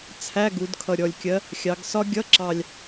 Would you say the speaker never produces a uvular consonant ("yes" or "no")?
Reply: yes